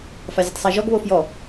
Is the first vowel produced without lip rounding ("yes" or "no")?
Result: yes